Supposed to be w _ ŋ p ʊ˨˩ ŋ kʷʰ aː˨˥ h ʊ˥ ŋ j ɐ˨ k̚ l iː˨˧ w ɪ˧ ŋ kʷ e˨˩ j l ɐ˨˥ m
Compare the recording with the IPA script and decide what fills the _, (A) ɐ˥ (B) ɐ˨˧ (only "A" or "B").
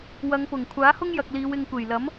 B